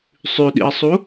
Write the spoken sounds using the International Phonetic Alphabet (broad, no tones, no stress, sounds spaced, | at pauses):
sˤ ʉ ɗ ḭ ɐ̯ sˤ u